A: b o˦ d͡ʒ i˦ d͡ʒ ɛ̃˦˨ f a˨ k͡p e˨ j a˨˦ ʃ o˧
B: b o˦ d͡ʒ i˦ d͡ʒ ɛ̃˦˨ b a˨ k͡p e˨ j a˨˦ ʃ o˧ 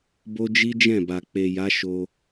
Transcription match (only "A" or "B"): B